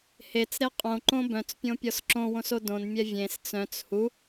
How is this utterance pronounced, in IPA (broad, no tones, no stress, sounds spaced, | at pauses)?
h e t͡s ɾ e qʼ õ ǃ õ b œ̃ t͡s pʲ õ pʲ ɔ s ǁ õ w õ s o d õ n mʲ ɛ vʲ ẽ s t͡s œ̃ t͡s h u